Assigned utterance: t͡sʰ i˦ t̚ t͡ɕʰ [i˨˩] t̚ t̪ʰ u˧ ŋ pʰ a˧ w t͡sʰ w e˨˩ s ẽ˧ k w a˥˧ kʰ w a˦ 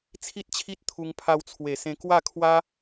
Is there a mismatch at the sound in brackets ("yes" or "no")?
yes